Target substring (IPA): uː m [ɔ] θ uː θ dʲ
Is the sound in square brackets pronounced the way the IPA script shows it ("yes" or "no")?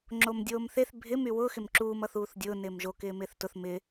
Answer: no